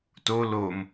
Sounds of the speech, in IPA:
to lom

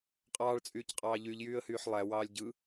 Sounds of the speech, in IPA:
qʼɑːɭt͡sʼyːcqʼɑː ʎyʎjyːə̯hyːħ lˠæwɑːlʲ ɟɯ

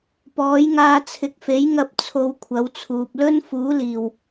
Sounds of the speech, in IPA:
pɔː˨˥jŋaː˧ t͡sʰɪ˨˥k̚fe˨˥j ŋɐ˧p̚ t͡sʰo˧wkʷʰɐ˨˥wt͡sʰuː˨p̚ lɵ˥nfuː˨˥liː˨˩w

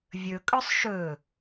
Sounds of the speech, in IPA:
vʲɵkʼɵsˤ ʃɵ

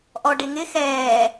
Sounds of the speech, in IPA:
ʔɔɖɪ ŋɪ xɛː

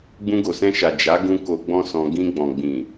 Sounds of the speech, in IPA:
ɡ͡bũ˧ɡo˨sɛ̃˧ʃa˨ d͡ʒa˨˦ ɡũ˦ko˧ɡ͡bɔ̃˦sɔ̃˧ ɡĩ˧ɡ͡bɔ̃˨ ɡ͡bĩ˨

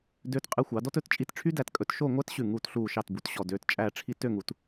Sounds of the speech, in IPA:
døː˧tqʼe˧xʷɑ˩˧ dɔ˥tɵ˥˧tt͡ʃʼi˥˧t ʈ͡ʂʰy˥dæ˧tkʼɵ˧t ʃo˥˧ŋʷæ˥t ɕʉ˧˩ŋuː˧˩t ɬuː˧˩ʃɑ˧˩t bu˩˧tɕɔ˧˩ døː˧tt͡ʃʼæː˥˧ʈ͡ʂʰi˥ tø˥˧ŋu˩˧t

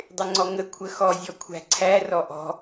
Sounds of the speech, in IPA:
dˤɪŋ͡ǀɔŋə kʷʰəxɔ zʲɔkʷʰæ̤ǀʰæ rɔʔɔ̤

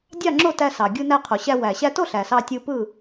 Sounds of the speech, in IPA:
dʲɑ˥˨ŋ͡ǁo˥˨ tæ˧sɑ˩ ɡʲɯ˧næ˧qʰo˩ɕæ˧ wæ˩ɕæ˧to˥˨ ɬæ˩sɑ˧ tʲɯ˧ pɯ˥˨

